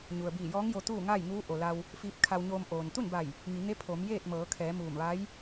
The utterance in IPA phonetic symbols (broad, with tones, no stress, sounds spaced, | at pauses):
ɲ u˩ ə̯ b iː˧˩ j ɔː˧˥ ŋ j o˧ t̪ uː˥˨ ŋ a˥˨ j ŋ uː˧˥ ʔ o˩ l a˧ w | f iː˧ p̚ kʰ a˧ w ɲ oː˧ m ʔ oː˩ n t̪ u˥˨ n b a˧˩ j | ŋ i˩˧ ŋ e˧˥ pʰ o˩˧ m j eː˥˨ t̚ m ɤː˩˧ kʰ ɛː˩˧ m uː˧˩ m ʋ a˧˥ j